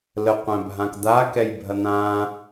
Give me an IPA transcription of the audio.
l ə qʷ æ̃ bʱ ã k d̪ a k ɛ j bʱ ɐ n̪ ã

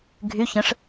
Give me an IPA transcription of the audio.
ɡʱ y ç ə̃ ʂ

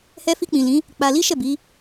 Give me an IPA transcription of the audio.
h ɛ˧ f i˧ k͡p ĩ˨ l ĩ˨˦ | k͡p a˧ l i˦ ʃ ɛ˦˨ b i˨˦

